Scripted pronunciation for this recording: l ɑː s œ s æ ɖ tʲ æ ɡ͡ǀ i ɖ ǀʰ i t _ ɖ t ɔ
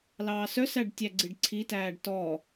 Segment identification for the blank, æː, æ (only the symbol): æː